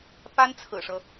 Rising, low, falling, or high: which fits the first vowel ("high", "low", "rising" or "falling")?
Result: high